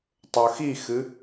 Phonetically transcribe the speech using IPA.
tˤ ɵ x i x ɨ

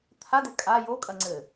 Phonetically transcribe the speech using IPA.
t̪ʰ a d ɘ kʼ a j o kʼ ɐ ŋ͡ǀ ɘ

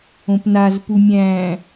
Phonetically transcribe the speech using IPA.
õ p n a z p u mʲ æ̃

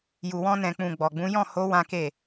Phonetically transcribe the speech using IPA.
j u˨ w ɔ̃˧ n ɛ̃˨ k͡p ũ˨ ɡ͡b ɔ˨ ɡ͡b ũ˨˦ j ɔ̃˦˨ h o˨˦ w ã˦ k e˦˨

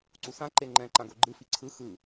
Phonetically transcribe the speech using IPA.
ǀ u s ã ǃ e ŋ͡ǃ ɛ̃ ǃ ã ɡ o ɡ͡ǃ ɯ f i ǀʰ ɯ x ɯ

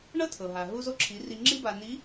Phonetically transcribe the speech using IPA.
ɳ ɤ˥ tʰ ɤ˩ ɦ a˩ ɦ u˧ z o˧ ǁʰ i˩˧ r i˧ ŋ͡ǁ i˥ b a˧ n i˧˥

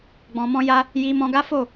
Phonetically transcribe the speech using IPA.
ɡ͡b ɔ̃˧ m ɔ̃˦ j a˦ | j i˧ m ɔ̃˧ ɡ a˦ f o˦˨

